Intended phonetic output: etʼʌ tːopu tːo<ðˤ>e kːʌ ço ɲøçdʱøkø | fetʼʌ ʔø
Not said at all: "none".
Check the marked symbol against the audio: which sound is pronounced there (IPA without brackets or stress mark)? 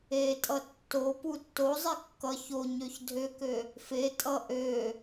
zˤ